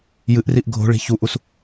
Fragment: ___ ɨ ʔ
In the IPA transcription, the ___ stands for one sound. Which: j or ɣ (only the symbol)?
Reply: j